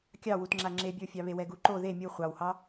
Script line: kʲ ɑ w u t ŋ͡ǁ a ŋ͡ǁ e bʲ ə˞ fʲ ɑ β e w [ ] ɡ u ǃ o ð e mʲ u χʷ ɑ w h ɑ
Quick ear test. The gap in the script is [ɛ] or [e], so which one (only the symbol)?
ɛ